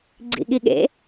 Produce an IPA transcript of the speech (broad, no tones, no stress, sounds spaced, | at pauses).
ɡ͡ǀ ḭ ɠ i ɠ ḛ